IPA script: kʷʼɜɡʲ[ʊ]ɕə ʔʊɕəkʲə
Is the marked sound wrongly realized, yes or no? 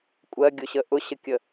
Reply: no